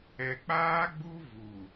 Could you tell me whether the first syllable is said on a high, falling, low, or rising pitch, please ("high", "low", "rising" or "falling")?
low